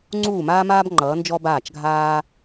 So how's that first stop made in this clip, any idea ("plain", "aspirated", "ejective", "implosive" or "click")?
click